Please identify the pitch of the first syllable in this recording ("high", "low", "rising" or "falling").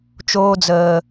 low